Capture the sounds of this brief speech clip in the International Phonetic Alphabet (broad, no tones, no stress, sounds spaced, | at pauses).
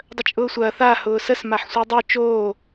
dˤ ə t͡ʃʼ ʊː sʷ ɐː θ a h ʊː s ə s m a ħ sʷ a dˤ ø t͡ʃ oː